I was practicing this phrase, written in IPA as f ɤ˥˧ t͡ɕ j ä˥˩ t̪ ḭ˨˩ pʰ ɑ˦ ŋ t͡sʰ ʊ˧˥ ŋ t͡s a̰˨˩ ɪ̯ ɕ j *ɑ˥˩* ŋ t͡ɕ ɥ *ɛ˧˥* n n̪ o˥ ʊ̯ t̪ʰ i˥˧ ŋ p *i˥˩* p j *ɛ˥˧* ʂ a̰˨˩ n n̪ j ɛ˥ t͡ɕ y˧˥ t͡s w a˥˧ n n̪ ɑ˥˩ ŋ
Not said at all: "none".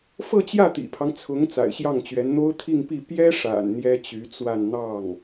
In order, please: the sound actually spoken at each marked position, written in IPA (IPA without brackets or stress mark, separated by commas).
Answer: ɑ˥˩, ɛ˧˥, i˥˩, ɛ˥